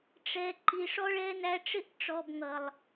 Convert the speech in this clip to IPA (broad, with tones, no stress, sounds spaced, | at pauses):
ʈ͡ʂ ɛ˨ ǃ i˨ ʂ ɔ˦ ɭ ɛ˦ n æ˧ ʈ͡ʂ ɪ˦ ʔ ʈ͡ʂ ɔ˨ b ŋ ʌ˨ lˠ